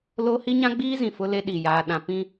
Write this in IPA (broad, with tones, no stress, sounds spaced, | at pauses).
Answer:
l o˦ h i˦ ɲ ã˦ ɡ͡b iː˦ z ĩ˨ f ʊ˦ l e˦ ɗ i˨ j aː˦ ɗ ã˦ p ĩ˦